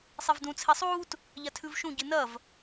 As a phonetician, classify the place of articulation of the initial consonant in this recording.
alveolar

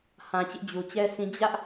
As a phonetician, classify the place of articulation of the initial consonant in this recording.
glottal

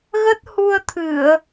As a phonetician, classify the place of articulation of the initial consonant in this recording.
velar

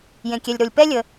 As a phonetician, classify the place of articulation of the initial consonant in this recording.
palatal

